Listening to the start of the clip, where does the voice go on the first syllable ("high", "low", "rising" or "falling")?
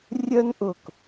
high